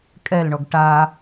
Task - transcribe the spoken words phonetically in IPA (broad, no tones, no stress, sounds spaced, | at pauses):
kʼ ɛ l ɳ ɔ ɡ ʈ a